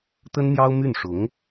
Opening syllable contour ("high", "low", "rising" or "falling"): high